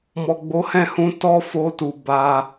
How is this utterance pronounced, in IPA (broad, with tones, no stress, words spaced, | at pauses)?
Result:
mɔ˨ɡ͡bo˨˦hɛ̃˦˨hũ˧ tɔ˦fo˧tu˨ ba˧